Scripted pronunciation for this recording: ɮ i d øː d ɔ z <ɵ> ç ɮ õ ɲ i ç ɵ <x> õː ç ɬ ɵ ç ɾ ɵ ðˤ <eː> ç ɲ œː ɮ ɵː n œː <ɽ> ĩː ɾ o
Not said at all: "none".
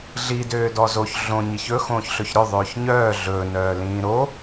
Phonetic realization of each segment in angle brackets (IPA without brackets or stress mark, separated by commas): o, x, øː, l